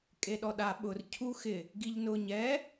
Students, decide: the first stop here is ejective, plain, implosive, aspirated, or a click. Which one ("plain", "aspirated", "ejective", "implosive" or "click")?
ejective